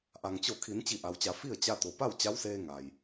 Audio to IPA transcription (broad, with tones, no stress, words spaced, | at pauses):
ʔa˩ŋt͡ɕo˧˩kʰi˩˧n t͡ɕi˧˩ʔa˩wt͡ɕa˩˧ fi˥˨ə̯ t͡ɕa˧t̪o˩pa˥˨w t͡ɕa˧˥wseː˧ ŋa˩j